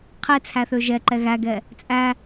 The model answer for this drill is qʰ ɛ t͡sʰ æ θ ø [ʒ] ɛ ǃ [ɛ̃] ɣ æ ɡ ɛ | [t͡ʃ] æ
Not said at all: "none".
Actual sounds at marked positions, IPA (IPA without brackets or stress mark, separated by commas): ʒ, ɛ, t͡sʼ